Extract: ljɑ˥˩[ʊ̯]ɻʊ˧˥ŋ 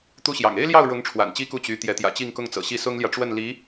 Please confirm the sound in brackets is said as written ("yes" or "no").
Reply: yes